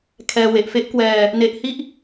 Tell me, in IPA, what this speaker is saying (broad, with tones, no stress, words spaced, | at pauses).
kʰɛː˧ we˨˩ʔfe˦˥ʔkwɛː˧ | ne˦˥ʔhi˥˩ʔ